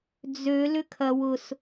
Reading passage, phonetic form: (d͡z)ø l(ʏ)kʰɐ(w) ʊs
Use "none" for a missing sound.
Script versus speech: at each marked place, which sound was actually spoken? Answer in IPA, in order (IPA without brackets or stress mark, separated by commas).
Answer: d͡z, ʏ, w